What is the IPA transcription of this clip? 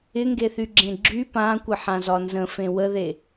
ɪŋɡeθyɡ͡ǁẽ ɡ͡ǁy pãkʷɪħãzɒ nzə̃fẽ wəðe

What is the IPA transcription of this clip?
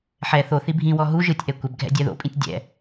ħɛ θoθi bʱĩwɔ ɦu ʒɯtʲʔɛ kʷɛbɡʱɛ̰ dʲɛðo̰pʼĩtʲ dʲɛ̰

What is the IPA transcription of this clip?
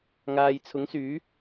ŋaː˨jt͡sʰʊ˨˥ŋsyː˨˥

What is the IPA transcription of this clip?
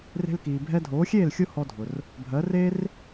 re̤˧lkiː˩ bʱɛ˧dʱoː˩˥xʲeː˥˩l xʲʊ˥hɔ˧dʱʊ˩r | bʱɜ˩˥reː˥r

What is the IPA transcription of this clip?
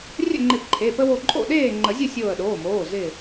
rʲə̰˥˨ŋ͡ǃɪ˧˩p ǃʰe˩˧˩pə˦wo˧˩ ǃʼo̰˥˨ɗeː˥˨ŋ͡ǃə˨˩˦zʲə˥˨ sʲoː˧˩ə̯ɗoː˩˧˩moː˩˧˩ zɪː˧˩

